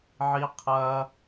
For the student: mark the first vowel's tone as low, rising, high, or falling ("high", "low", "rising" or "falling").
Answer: high